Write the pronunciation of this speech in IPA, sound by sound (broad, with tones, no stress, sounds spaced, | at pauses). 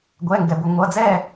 ɡʷ ɛ˩˧˩ ŋ ɡ ɛ˩ b ʊ˩ ŋʷ ʌ˩˧˩ d͡z ɛ˥˩